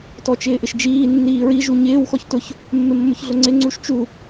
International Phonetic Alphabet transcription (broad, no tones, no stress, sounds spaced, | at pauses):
t ɔ t͡ʃ ɪː ʔ ɪ ʃ d͡ʒ iː nː iː ɹ i ʒ u ɲ ɪː w x ɔ ç t ʊ ç | mː ɪ mː ʊ ç ɮ ʊ ŋ͡ǀ ɪ ŋ͡ǀ u ʃ t͡ʃ u